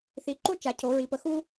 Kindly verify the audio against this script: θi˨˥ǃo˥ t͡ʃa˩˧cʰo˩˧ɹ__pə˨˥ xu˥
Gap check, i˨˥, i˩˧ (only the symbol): i˩˧